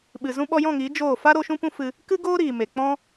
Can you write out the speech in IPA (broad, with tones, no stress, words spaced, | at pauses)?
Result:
ɓɨ˨ zũ˦ ɓɔ˧jɔ̃˦˨ŋiː˨˦ d͡ʒoː˦˨ fa˦ɾo˧ ʃũ˦pũ˦fɨ˧ | kɨ˦ɡoː˦ɾiː˨me˨ k͡pɔ̃˦